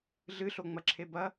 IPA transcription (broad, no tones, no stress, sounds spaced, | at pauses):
ɮ ɨ ɬ o ŋ͡m ɐ ǁʰ e b ɐ